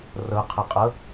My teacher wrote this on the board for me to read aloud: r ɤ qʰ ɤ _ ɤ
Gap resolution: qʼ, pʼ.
qʼ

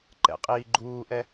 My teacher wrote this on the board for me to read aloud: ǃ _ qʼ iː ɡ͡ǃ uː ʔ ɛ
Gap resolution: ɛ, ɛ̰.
ɛ̰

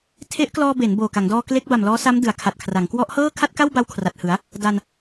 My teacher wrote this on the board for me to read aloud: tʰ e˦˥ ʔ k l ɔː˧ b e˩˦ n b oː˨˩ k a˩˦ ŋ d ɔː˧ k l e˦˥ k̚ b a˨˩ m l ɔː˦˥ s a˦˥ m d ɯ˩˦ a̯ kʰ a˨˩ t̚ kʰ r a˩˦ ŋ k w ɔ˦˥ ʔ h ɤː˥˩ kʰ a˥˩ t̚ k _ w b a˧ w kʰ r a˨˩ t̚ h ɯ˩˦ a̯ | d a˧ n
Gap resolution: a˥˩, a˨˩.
a˥˩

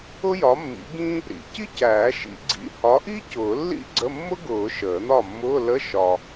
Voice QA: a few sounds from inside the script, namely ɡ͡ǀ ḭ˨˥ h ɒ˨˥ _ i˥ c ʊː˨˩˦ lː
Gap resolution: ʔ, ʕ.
ʔ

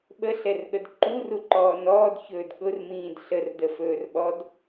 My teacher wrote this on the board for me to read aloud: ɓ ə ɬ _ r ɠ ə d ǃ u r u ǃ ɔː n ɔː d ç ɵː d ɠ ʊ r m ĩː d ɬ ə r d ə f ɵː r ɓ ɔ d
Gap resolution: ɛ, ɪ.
ɛ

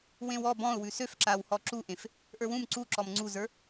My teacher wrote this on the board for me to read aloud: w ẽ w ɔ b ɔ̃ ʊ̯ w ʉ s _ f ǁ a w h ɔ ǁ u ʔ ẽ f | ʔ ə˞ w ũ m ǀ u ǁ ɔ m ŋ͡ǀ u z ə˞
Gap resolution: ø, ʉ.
ø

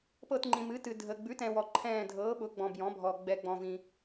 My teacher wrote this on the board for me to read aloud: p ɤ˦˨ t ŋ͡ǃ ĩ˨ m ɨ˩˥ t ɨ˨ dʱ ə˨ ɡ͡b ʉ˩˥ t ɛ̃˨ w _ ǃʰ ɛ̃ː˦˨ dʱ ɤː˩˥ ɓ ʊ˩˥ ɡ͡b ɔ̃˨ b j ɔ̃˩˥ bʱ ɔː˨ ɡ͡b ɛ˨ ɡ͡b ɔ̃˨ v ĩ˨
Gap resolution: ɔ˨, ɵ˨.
ɔ˨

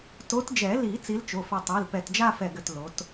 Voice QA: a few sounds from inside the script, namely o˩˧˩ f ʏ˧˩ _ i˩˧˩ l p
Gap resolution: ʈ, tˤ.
tˤ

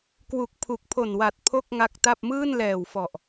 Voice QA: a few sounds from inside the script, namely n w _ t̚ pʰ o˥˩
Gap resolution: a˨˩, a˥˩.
a˨˩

